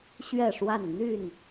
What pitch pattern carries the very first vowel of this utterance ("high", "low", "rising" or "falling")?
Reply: falling